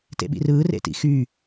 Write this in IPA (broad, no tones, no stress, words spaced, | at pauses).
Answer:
tḛɓḭrɯː rḛtḭxy